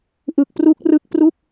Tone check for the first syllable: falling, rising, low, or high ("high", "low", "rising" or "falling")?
low